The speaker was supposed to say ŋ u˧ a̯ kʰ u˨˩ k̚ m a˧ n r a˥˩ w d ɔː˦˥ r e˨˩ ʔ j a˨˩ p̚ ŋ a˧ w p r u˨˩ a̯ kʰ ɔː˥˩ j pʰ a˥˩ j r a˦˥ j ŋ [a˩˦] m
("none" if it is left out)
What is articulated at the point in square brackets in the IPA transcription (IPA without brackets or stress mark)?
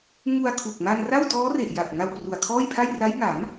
a˩˦